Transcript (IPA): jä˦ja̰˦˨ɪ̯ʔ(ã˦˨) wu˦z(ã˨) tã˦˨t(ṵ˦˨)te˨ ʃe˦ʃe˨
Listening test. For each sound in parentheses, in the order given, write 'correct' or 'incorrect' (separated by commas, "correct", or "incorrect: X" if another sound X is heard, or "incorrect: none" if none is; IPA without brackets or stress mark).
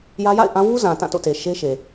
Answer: incorrect: ã˦, correct, incorrect: o̰˦˨